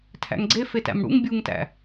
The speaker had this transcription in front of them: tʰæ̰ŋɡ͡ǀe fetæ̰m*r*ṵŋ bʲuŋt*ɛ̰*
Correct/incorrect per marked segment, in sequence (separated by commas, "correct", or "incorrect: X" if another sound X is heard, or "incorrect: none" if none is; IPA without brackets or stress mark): incorrect: ɽ, incorrect: æ̰